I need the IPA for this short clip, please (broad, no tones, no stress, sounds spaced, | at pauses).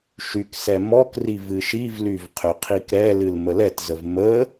ʃ y k s ɛ m ɔ k r i v ɨ ʃ i v l y v qʰ ø qʰ i k ɾ ɛ l ɨ l m ə l ɛ t z ə v m ə